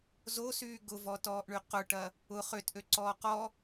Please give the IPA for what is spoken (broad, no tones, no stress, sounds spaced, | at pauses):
z o s yː ɡ ʊ v ɔ t ɔː ʔ ɳ y q ʊ ʈ ɐ | ʊ χ ø t ʔ ø ǀ ɔː q ɔ